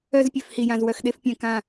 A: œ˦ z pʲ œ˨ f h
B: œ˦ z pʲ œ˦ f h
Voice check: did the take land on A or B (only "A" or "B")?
A